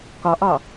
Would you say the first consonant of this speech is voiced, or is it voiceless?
voiceless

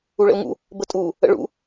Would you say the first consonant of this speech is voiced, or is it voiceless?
voiced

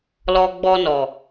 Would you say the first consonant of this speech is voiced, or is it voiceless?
voiced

